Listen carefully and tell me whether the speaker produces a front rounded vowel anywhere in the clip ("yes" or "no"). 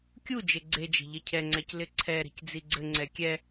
no